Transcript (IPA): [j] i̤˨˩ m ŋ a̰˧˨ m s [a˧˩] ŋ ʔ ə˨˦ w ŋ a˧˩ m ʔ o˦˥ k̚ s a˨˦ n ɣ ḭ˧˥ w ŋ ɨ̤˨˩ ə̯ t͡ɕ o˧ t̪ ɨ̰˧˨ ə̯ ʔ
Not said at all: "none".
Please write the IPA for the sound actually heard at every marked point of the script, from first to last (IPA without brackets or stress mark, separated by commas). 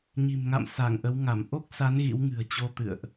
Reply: ɲ, a˧˩